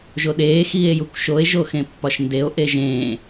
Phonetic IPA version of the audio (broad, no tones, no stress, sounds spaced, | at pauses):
ʒ o ɗ eː x iː e̯ j u kʷ ʃ o e̯ ʒ o x ẽ pː ɒ ʃ n d e o̯ ʔ e ʒ ẽː